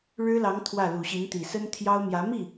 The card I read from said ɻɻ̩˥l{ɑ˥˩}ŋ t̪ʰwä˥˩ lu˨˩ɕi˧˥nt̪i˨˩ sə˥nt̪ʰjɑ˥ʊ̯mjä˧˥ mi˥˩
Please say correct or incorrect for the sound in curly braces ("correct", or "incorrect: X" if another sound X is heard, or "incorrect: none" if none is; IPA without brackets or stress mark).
incorrect: ɑ˧˥